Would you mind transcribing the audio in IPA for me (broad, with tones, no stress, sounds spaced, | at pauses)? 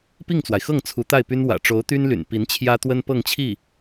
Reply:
p i˥˩ ŋ t͡s w a˩ ɪ̯ x ɤ˥˩ ŋ t͡sʰ u˧˥ t̪ a˥˩ ɪ̯ p y˥ n w ä̰˨˩ ʈ͡ʂ o˧˥ ʊ̯ t̪ y˥ n l y̰˨˩ n p i˧˥ n t͡ɕʰ j ä˥ t̪ w ə˥ n p ɤ˥˧ ŋ t͡ɕʰ i˥˩